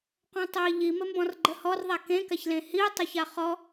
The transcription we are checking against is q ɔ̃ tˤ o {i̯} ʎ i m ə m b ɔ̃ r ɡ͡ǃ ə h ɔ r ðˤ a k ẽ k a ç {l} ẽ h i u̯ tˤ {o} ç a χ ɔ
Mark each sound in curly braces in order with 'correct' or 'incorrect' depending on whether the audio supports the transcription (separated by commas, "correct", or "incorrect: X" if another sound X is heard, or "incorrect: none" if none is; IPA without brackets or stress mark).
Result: correct, correct, correct